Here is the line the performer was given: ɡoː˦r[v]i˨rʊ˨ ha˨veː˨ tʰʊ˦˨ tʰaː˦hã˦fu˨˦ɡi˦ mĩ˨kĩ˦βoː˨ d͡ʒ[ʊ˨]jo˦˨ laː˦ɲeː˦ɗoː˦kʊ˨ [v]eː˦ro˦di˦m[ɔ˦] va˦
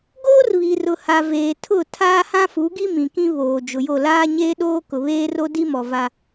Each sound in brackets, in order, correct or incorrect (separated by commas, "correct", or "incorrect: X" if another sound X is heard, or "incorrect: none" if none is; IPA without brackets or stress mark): incorrect: β, correct, incorrect: β, incorrect: ɔ˨